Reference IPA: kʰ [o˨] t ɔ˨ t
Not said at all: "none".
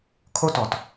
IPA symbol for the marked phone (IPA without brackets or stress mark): o˦